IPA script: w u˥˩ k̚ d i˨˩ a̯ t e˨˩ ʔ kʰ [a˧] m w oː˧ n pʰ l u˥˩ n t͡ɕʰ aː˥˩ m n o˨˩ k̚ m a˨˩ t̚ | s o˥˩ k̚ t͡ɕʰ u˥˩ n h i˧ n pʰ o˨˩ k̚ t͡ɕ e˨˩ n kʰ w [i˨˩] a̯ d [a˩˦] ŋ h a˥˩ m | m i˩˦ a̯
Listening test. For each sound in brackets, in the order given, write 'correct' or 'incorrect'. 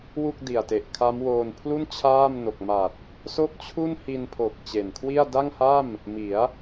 incorrect: a˦˥, incorrect: i˥˩, incorrect: a˥˩

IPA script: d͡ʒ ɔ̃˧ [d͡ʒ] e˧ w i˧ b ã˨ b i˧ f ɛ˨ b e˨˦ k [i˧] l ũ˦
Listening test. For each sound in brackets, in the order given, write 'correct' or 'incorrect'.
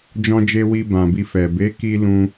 correct, correct

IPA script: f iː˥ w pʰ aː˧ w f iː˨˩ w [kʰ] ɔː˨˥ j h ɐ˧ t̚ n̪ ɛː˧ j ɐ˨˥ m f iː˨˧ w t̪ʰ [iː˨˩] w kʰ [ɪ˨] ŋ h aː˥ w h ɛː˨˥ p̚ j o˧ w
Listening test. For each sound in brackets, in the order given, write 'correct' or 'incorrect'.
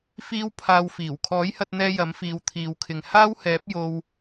correct, incorrect: iː˨, correct

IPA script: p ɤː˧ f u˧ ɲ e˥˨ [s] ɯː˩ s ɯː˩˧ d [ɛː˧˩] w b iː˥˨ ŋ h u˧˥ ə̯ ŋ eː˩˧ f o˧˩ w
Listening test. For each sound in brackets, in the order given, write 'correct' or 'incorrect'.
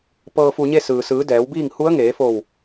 correct, incorrect: ɛː˩˧

